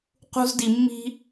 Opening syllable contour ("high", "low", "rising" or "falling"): high